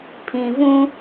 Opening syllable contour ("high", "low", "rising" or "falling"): low